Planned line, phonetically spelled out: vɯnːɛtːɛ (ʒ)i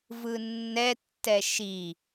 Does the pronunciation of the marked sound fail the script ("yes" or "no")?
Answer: yes